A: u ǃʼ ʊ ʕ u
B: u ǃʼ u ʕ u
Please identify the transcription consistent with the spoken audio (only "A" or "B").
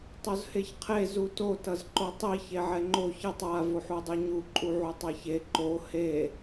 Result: B